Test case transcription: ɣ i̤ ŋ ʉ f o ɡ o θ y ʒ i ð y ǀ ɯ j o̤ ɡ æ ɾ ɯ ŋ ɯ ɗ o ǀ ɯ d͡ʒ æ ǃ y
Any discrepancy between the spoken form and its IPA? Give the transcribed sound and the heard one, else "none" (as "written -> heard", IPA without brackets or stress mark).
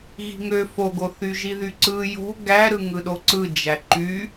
ʉ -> ø